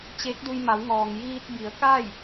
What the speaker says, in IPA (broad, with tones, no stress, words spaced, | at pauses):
t͡ɕeː˧˥k̚du˧jma˩˧wŋɔː˩ŋ jiː˧t̚ bi˩˧ə̯ka˥˨j